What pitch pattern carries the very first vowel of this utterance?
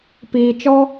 low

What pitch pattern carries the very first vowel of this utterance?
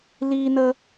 high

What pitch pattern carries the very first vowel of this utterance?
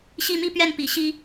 falling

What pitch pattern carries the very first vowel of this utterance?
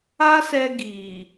high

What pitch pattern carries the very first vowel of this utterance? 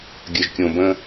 low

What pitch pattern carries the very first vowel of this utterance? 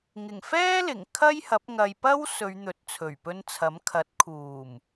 low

